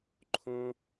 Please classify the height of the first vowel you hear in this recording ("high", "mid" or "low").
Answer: mid